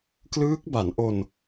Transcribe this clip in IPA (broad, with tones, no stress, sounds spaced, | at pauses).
k l ɯː˦˥ k̚ b a˩˦ n ʔ o˧ n